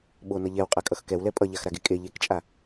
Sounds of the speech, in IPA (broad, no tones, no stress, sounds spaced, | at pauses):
ɓ o n ʌ ʎ ɛ w qʼ a kʼ ʌ x k ɛ w l ɛ pʼ ʌ ʎ a x ɾ a ɡ e kʼ e ʎ e k t͡ʃʼ a